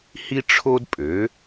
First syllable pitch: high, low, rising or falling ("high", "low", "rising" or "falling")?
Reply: high